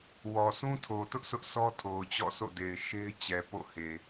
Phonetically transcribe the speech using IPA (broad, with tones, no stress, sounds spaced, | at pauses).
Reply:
w ɔ˨ sʰ ũ˦ tʰ o˨ t ʊ˦ ʔ sʰ ʊ˦ ʔ sʰ ɔ˦ tʰ o˨ ʊ̯ t͡ɕ ɔ̰˦˨ s o̰˦˨ d e˨ ɪ̯ ʃ e˦ ɪ̯ t͡ɕ ɛ˨ p o̰˦˨ h e˨